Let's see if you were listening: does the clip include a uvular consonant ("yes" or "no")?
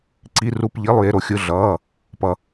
no